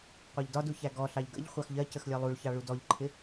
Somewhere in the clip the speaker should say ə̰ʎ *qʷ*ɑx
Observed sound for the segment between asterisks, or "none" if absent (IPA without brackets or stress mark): χʷ